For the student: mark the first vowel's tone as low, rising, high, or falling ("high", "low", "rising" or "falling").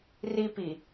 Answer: high